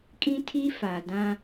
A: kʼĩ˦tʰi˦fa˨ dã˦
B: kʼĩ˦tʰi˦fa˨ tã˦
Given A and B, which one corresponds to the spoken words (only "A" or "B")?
A